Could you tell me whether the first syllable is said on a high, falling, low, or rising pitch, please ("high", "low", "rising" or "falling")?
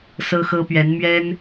high